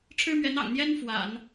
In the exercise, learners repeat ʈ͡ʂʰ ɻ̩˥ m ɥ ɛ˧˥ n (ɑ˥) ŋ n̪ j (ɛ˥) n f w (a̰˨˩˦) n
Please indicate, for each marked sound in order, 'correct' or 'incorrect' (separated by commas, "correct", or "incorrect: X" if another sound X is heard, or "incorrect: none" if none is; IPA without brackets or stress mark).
incorrect: ɑ̰˨˩, correct, correct